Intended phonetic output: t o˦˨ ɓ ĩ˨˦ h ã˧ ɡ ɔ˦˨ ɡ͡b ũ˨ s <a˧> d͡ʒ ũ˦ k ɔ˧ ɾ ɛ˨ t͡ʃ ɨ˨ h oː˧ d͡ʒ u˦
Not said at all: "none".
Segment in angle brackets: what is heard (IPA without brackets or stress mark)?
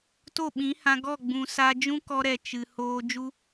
a˧